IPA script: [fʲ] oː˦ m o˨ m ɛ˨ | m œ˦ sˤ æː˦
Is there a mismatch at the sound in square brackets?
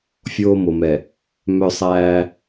no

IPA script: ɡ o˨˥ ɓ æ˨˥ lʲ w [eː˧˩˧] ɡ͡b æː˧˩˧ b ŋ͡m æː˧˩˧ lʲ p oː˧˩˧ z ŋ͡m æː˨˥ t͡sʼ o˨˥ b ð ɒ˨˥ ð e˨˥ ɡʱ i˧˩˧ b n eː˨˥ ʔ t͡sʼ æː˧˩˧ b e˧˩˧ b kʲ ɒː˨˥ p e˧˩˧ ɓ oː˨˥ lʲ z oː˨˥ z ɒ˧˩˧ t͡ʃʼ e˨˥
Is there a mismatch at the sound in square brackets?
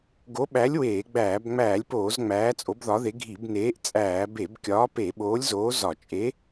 no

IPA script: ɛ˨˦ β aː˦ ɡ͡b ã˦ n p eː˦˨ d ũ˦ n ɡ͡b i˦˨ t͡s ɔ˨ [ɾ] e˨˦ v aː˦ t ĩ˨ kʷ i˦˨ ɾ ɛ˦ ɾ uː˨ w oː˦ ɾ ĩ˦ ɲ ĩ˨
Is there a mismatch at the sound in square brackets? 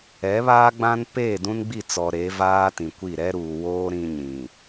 no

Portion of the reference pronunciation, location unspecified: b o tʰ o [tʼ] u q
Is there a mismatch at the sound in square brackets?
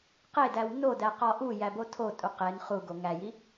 no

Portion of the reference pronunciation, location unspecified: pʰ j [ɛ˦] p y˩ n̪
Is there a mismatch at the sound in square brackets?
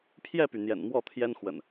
yes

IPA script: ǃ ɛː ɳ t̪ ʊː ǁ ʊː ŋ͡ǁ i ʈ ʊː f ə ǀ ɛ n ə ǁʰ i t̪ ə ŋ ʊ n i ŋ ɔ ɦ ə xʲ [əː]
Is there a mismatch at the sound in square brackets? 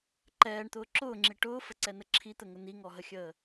no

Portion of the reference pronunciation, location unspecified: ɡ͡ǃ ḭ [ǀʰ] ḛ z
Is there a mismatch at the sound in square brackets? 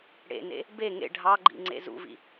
yes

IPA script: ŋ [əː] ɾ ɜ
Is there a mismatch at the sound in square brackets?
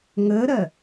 no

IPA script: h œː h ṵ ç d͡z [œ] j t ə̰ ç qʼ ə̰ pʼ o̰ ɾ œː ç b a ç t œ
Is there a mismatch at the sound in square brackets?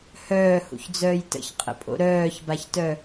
yes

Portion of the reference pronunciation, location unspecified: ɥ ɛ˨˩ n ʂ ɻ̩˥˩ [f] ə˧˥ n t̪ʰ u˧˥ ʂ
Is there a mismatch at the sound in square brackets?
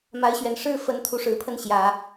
no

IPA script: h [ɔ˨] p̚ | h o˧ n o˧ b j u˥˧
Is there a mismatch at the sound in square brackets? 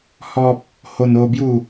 yes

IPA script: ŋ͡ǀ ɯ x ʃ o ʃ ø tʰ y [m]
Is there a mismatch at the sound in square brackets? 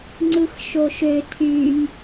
no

